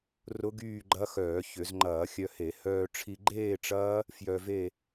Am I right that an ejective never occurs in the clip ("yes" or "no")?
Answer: yes